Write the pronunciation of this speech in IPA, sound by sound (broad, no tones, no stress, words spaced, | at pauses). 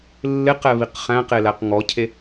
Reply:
lːɪqɛβiq χæ̃qelæq ŋɔcʰe